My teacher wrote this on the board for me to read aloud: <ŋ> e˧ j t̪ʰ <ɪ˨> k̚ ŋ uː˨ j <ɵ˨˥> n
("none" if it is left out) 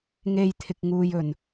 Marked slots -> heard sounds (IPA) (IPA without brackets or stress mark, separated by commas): ŋ, ɪ˨, ɵ˨˩